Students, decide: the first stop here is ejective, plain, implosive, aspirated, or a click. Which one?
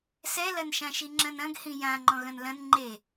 click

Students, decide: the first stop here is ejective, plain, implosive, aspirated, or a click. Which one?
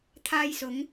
aspirated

